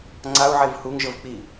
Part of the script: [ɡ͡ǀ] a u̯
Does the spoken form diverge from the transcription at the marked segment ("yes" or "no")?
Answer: yes